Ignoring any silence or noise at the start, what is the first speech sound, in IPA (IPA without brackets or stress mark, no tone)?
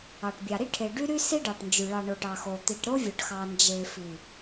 ɑ